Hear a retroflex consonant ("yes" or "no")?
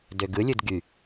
no